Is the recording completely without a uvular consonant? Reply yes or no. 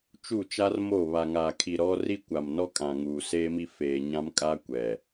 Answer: yes